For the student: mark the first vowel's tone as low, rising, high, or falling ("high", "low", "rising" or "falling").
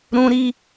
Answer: high